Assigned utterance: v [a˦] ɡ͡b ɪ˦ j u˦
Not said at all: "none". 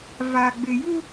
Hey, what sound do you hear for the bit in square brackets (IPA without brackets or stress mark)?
a˦